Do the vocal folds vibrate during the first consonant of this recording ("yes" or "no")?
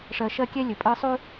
no